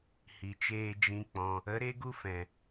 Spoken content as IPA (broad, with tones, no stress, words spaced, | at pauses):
hi˨t͡ʃeː˧ d͡ʒĩ˦k͡pɔ̃˧ | ə˨˦ɾe˦ɡu˦fɛ̃˨